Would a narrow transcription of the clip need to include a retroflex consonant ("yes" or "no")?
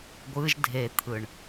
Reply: yes